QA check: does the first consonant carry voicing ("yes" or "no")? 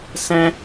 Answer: no